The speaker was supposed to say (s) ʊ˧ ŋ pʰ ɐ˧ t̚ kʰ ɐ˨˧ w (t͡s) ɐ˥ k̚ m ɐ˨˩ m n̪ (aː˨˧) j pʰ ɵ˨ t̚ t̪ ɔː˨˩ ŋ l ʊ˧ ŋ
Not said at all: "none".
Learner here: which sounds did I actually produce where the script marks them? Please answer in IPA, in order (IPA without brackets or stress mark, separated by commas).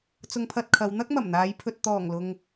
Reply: t͡s, n̪, aː˨˧